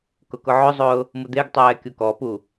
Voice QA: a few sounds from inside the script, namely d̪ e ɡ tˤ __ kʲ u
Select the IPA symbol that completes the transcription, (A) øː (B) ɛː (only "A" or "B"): B